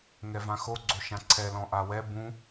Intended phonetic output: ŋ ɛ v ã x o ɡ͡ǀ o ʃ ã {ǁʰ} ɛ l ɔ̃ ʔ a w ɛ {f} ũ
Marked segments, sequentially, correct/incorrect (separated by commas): incorrect, incorrect